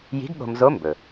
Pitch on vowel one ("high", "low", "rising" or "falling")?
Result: rising